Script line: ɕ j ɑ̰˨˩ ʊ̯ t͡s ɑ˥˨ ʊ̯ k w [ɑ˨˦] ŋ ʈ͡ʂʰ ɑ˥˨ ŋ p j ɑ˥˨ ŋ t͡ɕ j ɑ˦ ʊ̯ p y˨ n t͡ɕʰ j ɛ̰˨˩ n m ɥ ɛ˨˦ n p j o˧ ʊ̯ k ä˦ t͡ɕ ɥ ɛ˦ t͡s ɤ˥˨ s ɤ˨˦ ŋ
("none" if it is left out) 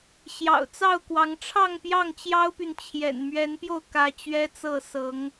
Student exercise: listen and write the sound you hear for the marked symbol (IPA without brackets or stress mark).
ɑ˨˦